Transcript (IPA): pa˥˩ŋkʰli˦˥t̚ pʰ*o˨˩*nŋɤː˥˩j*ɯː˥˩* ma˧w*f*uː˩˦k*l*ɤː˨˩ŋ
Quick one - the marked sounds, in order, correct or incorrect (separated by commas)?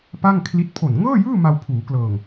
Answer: correct, correct, incorrect, correct